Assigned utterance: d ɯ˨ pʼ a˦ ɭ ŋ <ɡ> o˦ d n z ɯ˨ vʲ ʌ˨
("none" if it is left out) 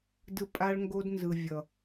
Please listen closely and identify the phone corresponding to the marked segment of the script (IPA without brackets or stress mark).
ɡ